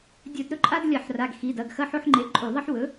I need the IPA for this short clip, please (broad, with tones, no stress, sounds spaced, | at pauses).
dʲ ɵ˧˩˧ d ɾ ɵ˦ ǃʼ a˦ d lʲ ɐ˧˩˧ ħ r a˩˧˩ ɡ x i˩˧˩ d ɐ˩˧˩ ɡ x ɐ˦ ħ o˦ ħ ŋ͡ǃ e˩˥ ǃʼ u˧˩˧ ðˤ ɐ˦ ħ w ɵ˩˥